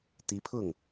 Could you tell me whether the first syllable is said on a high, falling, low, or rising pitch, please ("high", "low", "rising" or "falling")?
rising